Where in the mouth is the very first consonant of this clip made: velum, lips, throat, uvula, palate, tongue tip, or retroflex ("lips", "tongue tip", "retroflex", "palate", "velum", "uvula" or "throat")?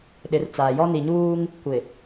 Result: tongue tip